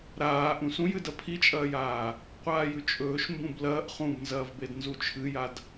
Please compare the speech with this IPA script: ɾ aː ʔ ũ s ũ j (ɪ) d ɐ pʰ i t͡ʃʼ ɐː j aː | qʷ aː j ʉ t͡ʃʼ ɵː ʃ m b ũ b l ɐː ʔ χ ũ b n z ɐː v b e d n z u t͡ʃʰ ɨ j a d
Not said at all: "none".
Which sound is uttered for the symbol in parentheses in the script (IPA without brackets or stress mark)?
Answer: ɨ